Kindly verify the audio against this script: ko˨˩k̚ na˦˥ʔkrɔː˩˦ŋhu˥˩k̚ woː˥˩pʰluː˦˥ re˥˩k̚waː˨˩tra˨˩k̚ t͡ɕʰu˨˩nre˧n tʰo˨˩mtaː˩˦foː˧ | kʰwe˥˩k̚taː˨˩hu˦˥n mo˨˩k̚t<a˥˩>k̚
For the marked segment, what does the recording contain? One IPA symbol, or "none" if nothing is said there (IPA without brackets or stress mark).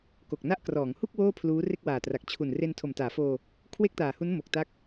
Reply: a˦˥